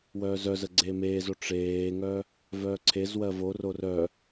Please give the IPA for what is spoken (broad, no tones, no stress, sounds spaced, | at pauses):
w œː z œ z ə ɡ͡ǀ eː m eː z o ʈ͡ʂ eː ŋ œ | v œː ǀʰ e z w ɜ v o r o r œ